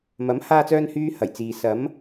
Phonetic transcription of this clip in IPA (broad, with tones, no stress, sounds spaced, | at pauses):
m ɐ˨˥ m h aː˧ t͡s œː˧ n h yː˥ h ɐ˨˩ j t͡s iː˨ s ɐ˨˥ m